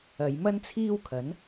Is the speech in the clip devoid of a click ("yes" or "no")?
yes